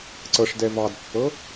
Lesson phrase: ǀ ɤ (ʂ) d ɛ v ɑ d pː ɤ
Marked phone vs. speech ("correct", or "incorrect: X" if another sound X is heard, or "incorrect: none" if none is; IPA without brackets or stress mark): correct